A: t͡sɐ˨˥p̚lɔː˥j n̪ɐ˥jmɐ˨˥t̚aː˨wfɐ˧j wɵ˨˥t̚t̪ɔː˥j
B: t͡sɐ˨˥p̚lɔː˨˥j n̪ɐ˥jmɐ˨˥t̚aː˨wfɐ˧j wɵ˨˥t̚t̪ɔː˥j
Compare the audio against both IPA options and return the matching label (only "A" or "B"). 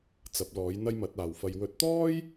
B